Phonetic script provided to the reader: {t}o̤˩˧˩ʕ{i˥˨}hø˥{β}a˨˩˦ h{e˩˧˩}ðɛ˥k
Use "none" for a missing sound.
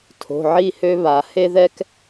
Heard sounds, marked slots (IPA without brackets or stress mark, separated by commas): tʰ, i˥˨, β, e˥